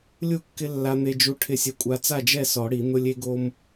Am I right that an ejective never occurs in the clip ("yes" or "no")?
no